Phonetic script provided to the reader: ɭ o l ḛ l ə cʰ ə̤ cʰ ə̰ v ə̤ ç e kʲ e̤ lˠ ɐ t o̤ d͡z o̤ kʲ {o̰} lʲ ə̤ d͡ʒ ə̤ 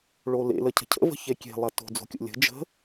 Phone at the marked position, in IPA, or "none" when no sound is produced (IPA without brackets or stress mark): o̰